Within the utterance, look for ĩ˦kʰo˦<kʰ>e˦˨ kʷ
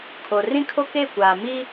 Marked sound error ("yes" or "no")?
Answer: yes